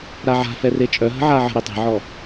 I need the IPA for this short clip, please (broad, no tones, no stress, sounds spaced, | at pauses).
ɾ a ʕ a̤ f ɛ r e t͡ʃʼ œ ɦ ə̤ ʕ a ʕ ə̤ ɾ i tˤ ɛ̤ ʕ ɔ